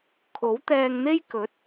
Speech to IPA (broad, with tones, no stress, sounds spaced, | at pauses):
kʰ o˨˥ w t̪ ɛː˧ ŋ n̪ e˥ j k ɵ˨˥ t̚